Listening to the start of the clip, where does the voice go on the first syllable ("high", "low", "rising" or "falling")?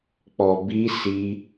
low